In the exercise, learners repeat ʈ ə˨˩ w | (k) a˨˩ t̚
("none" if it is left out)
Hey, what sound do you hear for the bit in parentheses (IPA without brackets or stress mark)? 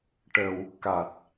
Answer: k